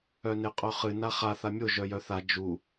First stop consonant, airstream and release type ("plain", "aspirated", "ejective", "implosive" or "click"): ejective